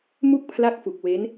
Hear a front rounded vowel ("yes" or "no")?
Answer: no